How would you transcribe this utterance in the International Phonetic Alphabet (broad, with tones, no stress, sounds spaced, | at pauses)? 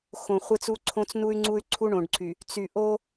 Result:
x õ˨ χʷ ɪ˦ t͡s u˦ ǀʰ õ˦ t͡s n u˦ y̯ ŋ͡ǀ u˦ y̯ ǀʰ u˦ ɳ õ˨ ɖ ǀʰ y˨ | t͡s y˨ ʔ o˦